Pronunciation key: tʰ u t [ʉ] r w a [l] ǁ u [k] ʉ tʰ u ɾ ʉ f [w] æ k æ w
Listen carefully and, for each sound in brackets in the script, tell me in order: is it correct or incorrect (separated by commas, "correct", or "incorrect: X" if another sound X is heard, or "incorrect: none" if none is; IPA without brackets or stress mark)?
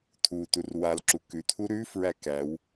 incorrect: u, correct, correct, incorrect: ɹ